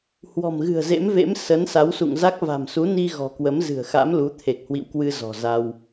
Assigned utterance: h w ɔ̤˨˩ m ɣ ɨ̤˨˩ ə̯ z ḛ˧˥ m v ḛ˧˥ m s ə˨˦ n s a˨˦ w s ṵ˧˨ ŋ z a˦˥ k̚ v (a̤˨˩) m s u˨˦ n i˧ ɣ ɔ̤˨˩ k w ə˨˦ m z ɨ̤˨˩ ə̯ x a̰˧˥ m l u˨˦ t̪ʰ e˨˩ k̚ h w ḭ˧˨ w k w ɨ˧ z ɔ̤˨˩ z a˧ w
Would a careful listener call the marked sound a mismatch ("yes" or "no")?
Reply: no